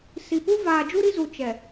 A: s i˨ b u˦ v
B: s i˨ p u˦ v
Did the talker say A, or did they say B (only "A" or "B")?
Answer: B